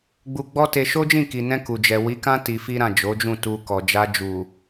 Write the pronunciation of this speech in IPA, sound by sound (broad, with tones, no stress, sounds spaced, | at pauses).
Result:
ɡ͡b u˧ ɡ͡b ɔ˦ t e˧ ʃ o˦ d͡ʒ ĩ˦˨ k i˨ n ɛ̃˧ k u˨ d͡ʒ ɛ˨ w i˨˦ k ã˦ t i˧ f i˦ ɾ ã˦˨ d͡ʒ o˨˦ d͡ʒ ũ˦˨ t u˧ k ɔ˨ d͡ʒ a˧ d͡ʒ u˨